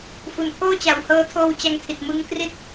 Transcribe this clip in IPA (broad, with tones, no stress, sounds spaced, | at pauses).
f u˨˩ n pʰ oː˥˩ t͡ɕ a˨˩ w h ɤː˧ tʰ oː˧ w t͡ɕ a˧ ŋ tʰ i˨˩ t̚ m ɯ˦˥ ŋ k r i˥˩ t̚